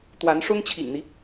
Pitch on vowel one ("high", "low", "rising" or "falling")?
rising